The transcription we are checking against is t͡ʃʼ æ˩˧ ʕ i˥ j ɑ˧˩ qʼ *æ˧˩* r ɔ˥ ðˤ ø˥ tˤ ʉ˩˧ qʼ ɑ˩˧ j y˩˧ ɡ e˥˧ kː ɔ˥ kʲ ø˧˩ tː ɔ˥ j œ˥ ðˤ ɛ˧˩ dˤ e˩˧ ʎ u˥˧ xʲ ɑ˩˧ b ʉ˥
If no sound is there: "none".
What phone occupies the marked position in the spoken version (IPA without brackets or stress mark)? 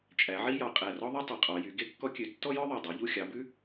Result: æ˧˩